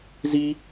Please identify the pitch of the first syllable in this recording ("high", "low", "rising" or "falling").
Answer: high